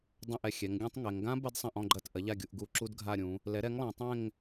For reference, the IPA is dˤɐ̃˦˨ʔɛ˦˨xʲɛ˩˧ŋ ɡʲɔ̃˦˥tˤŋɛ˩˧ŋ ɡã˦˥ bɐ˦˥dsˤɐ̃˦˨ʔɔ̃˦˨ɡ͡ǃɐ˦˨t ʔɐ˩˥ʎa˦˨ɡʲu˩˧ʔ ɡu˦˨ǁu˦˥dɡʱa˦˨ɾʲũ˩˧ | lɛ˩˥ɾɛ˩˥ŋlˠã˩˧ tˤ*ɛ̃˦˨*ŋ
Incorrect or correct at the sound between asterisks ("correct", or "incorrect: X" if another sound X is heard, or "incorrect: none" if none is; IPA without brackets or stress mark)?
correct